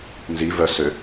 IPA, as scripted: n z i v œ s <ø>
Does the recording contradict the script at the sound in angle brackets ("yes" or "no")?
no